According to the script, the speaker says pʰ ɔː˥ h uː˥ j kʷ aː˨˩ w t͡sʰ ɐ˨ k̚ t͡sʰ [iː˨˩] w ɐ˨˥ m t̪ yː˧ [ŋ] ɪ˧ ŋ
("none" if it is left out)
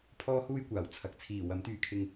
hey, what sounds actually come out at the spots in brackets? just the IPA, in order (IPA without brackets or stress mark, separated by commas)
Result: iː˨˩, kʰ